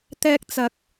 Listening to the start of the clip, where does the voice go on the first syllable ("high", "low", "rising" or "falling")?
high